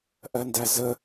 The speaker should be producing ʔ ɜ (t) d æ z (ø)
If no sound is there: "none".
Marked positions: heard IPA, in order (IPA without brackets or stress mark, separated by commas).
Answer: n, ə